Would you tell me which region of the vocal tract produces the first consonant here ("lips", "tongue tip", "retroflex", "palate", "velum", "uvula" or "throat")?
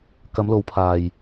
velum